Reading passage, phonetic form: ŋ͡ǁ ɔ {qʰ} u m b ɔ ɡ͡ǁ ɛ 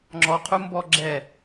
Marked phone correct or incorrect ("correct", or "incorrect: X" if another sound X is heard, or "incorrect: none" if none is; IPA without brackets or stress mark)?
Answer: correct